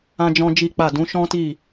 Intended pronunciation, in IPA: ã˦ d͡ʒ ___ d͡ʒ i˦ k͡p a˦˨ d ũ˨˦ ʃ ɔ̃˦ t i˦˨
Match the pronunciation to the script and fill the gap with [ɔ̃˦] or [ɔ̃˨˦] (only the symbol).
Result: ɔ̃˦